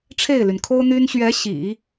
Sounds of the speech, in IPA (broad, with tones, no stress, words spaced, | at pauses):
ʈ͡ʂʰe˥˩ɪ̯ly˩nkʰo˥ʊ̯n̪y˥n ɕɥɛ˧˥ ɕḭ˨˩˦